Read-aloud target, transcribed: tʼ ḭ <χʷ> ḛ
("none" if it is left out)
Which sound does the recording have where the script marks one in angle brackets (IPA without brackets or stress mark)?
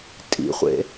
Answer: χʷ